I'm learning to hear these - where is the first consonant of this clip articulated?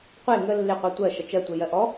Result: uvula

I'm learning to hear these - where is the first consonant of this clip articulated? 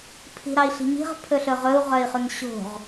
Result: lips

